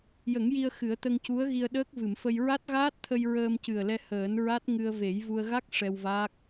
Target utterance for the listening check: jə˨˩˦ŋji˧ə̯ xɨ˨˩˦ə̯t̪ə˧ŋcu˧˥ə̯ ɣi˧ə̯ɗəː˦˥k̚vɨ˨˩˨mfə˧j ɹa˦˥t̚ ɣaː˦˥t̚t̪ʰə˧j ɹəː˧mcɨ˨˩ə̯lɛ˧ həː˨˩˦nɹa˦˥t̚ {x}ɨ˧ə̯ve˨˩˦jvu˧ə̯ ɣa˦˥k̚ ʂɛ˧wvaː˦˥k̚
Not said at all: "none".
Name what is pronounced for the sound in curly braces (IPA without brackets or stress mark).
ŋ